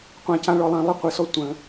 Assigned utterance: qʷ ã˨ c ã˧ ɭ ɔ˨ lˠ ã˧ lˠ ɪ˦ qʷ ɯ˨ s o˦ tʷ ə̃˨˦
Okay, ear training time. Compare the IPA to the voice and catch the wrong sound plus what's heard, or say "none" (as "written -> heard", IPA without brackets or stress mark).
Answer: o˦ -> ɔ˦